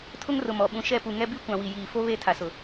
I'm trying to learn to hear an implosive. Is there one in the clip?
yes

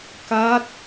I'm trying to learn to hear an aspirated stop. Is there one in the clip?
no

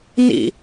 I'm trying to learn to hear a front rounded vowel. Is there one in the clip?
no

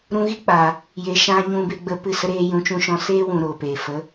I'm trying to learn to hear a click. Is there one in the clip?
no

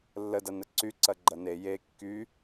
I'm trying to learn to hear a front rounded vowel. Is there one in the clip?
yes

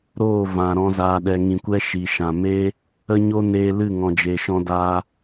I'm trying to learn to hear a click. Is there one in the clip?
no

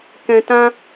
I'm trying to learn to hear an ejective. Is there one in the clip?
no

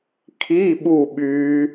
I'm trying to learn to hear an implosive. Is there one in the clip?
yes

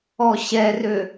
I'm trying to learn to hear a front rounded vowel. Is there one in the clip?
yes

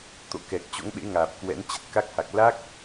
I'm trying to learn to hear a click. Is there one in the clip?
no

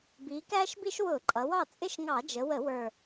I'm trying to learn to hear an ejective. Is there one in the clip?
yes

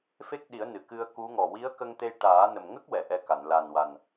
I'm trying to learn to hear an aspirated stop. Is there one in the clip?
no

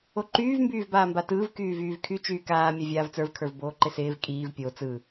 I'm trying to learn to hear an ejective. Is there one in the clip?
yes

